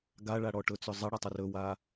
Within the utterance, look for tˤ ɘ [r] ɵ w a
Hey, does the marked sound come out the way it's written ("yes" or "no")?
yes